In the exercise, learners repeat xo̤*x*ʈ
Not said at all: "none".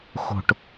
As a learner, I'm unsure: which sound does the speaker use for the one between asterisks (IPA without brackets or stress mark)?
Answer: none